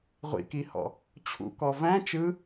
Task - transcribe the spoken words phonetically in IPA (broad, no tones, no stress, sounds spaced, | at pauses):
ʁʷ ḭ k i h ɔ̰ | t͡ɕʰ ṵ k ɔ v æ̃ t͡ʃ ɯ